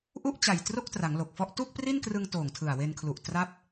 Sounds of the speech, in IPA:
ʔu˥˩ʔ t͡ɕa˨˩jtro˥˩k̚tra˩˦ŋ lo˨˩k̚fɔ˥˩ʔ tu˥˩k̚pri˥˩nkrɯ˧ŋ toː˨˩ŋtʰɯ˨˩a̯we˧nkʰlu˨˩ʔ tra˥˩p̚

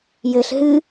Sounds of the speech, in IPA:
jɘɬ ɦɨ

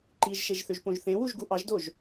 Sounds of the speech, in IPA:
ǃiʒʃeʒθøʒpõʒ θẽwuʒɡu ʔɑʒdoʒ

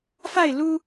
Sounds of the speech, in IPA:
fa˥˨ɪ̯lu˦

